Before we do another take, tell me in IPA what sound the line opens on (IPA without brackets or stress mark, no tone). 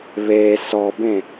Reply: β